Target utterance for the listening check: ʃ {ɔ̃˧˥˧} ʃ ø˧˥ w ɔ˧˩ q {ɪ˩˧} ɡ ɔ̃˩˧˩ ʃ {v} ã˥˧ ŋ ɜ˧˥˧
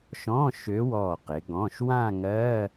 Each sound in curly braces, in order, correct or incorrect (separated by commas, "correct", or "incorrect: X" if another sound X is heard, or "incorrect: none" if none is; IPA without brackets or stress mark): correct, correct, incorrect: w